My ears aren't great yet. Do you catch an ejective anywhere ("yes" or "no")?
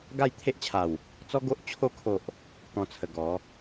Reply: no